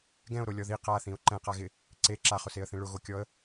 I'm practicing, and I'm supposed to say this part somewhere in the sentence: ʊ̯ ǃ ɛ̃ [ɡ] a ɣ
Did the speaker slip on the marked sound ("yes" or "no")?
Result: yes